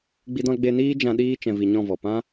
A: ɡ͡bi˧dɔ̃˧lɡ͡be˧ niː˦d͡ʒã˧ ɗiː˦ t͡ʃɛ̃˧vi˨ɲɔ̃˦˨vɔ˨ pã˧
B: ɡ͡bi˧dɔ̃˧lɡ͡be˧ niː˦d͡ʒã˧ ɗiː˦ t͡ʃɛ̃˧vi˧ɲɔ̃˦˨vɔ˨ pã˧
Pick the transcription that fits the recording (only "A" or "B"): B